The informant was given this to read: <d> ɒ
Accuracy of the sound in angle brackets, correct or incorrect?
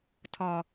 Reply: incorrect